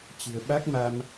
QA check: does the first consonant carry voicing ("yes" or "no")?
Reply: no